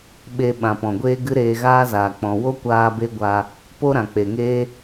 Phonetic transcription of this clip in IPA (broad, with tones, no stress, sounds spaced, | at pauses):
ɓ e˧ ɓ ã˨ p ɔ̃˨ ɡʷ eː˦ ɡ ɨ˦ ɾ eː˧ ɣ aː˦ z aː˨ k͡p ɔ̃˨ w o˦ kʷ aː˧ b e˦ ɡʷ a˧ | p o˦ ɾ ã˨ k͡p e˨ ŋ eː˦